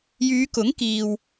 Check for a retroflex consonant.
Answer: absent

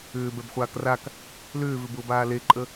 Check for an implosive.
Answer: absent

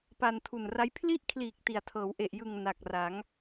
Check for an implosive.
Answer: absent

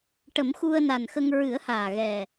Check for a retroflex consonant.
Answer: present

